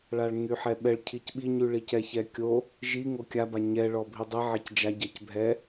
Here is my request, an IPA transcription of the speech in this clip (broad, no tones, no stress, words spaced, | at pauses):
ɭaɭŋyħɛɓɛɭ cʰicɓiɲyɭi cɛçɛkʲo | ʒi ŋokʲaba ɲɛ ɭɔbʱidˤi ʕecd͡ʒaɟɛc bʱɛ